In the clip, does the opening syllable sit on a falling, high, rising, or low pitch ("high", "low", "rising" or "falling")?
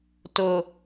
low